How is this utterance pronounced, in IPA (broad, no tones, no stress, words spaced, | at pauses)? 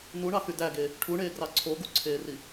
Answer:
nuɳɑxy dæɡe | ʈʰuɳeːɡrɑ ǀʰo ɡuǀʰeːri